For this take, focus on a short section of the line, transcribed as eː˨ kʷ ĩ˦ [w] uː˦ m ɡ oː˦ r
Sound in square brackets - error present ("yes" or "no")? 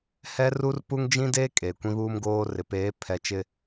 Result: yes